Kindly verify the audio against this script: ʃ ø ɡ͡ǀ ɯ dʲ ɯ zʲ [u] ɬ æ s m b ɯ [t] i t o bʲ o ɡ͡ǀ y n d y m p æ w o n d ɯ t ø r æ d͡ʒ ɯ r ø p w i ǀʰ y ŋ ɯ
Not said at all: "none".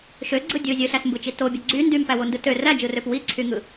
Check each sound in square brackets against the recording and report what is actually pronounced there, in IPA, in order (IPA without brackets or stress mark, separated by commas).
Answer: ɯ, t͡ʃ